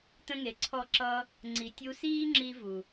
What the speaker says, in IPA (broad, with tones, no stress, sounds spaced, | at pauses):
t ə̃˦ ŋ e˨˦ ǀʰ ɔ˦ ǁ ʌ˧ | ŋ͡ǀ i˨ tʲ u˧ s iː˦ ŋ͡ǁ i˧ v u˨